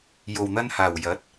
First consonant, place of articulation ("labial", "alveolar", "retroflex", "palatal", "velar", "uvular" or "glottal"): palatal